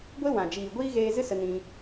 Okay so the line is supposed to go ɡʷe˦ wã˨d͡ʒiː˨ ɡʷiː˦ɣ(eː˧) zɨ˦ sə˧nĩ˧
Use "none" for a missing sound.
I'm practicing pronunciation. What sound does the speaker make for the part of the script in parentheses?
eː˧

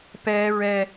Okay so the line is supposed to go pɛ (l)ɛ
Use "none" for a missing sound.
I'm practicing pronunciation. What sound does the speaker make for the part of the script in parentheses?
ɹ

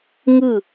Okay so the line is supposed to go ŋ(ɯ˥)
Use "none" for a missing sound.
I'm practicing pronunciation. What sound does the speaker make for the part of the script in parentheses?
ɯ˥˩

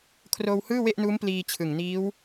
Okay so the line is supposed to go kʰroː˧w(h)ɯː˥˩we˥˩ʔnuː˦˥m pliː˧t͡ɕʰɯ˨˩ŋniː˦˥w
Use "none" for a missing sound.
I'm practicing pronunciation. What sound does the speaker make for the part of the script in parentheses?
h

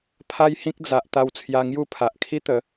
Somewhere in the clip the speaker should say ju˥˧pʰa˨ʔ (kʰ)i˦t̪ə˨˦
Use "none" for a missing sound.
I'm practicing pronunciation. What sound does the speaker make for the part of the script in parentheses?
kʰ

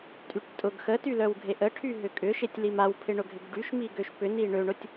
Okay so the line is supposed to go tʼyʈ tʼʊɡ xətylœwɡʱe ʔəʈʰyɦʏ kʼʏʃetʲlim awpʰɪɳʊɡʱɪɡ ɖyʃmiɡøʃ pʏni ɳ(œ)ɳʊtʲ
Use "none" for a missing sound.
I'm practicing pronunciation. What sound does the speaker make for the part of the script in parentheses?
ø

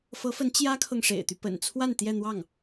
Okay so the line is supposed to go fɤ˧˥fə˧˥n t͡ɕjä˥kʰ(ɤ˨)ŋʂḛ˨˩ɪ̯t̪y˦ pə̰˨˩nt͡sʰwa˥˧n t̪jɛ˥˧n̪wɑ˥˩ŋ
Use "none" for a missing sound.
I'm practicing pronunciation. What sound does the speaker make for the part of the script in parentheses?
ɤ˨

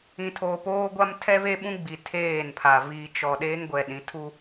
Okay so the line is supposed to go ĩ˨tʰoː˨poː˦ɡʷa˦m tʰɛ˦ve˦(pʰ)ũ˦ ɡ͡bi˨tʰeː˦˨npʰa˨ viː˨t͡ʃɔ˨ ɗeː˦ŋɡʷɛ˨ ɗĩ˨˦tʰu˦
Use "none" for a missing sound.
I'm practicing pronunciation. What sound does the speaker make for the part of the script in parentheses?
ɓ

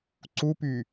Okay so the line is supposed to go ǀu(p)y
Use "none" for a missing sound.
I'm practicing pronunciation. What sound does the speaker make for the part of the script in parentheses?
p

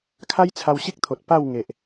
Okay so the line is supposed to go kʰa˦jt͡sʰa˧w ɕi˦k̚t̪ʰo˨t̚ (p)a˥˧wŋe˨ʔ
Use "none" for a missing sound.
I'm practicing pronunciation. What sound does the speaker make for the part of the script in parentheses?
p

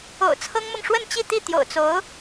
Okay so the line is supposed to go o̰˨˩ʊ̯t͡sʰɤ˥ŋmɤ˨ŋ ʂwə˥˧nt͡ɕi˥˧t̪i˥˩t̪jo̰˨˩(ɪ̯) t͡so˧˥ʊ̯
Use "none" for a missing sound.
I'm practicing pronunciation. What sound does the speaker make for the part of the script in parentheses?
ʊ̯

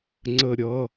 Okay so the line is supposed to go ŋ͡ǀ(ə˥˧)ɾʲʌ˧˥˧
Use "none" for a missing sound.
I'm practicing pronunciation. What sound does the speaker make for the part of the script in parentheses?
ə˥˧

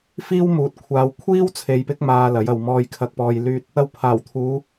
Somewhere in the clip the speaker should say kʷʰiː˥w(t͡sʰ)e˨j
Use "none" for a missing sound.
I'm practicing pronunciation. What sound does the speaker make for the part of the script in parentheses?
t͡sʰ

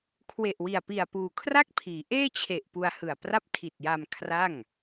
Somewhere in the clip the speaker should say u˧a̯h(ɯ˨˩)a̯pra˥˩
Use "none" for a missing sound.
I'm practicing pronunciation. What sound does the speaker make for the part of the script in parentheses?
ɯ˨˩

